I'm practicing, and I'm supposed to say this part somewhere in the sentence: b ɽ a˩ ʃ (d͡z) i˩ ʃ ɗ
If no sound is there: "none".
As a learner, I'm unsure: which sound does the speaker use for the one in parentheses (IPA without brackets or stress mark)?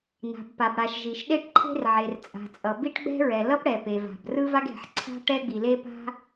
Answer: ʒ